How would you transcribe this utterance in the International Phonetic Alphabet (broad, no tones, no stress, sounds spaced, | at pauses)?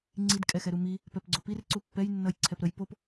ŋ͡ǀ i d kʼ ɛ x ɛ ɾ u m i | p ɛ p ɡ͡ǀ o p i r ǀ u pː ɛ j nː ʌ j ǀʰ ɛ p ɾ ə j p o p